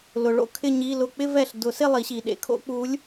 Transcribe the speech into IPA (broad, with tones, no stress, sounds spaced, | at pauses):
l ʊ˨ ɭ o̰˥˧ kʰ ɪ˥˧ ɲ i˧˥˧ l ʊ˥˩ k͡p ɪ˥˧ v ɛ˨ ɬ d ʊ˨˩˦ s ɪ˥˧ lˠ i˨˩˦ ɕ i˨ ɗ ḛ˧˥ kʰ o̰˧˥ k͡p u˧˥ lʲ